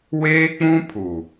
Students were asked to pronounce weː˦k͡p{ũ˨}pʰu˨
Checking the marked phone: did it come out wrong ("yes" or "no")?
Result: yes